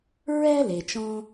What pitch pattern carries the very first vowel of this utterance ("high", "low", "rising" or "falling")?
high